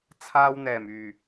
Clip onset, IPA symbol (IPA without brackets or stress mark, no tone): t͡sʰ